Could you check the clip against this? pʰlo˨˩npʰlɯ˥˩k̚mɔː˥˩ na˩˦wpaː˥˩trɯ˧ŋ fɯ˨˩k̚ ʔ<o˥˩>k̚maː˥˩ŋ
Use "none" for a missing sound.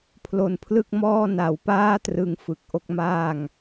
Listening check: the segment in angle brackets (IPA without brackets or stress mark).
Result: o˦˥